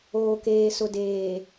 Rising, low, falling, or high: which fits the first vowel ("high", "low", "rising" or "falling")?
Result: low